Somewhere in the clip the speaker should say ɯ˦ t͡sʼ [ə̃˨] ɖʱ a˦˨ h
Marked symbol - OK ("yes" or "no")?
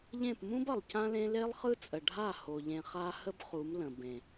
no